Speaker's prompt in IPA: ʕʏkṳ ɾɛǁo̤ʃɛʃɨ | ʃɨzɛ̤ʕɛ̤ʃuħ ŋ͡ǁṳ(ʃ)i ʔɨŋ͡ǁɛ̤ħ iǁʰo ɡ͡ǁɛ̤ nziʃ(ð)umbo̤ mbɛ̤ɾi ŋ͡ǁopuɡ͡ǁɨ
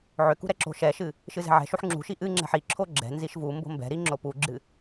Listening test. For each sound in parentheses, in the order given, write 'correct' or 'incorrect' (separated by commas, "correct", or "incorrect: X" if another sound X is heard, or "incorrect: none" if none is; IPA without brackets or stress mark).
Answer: correct, incorrect: v